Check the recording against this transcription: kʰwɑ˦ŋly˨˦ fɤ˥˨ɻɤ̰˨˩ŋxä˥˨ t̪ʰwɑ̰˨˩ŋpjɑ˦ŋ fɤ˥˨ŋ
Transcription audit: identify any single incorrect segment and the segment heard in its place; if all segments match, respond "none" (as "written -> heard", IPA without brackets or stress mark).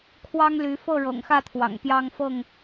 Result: none